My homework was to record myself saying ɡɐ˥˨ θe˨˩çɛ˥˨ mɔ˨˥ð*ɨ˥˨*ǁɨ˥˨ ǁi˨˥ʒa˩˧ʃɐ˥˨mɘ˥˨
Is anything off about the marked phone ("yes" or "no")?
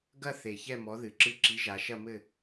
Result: yes